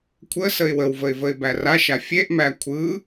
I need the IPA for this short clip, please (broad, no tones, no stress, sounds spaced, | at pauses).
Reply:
kʷʰ ə s ə ɪ̯ w ə w v ə ɪ̯ v ə ɪ̯ b æ r a ʃ a fʲ e ʔ m æ kʷʰ ɯ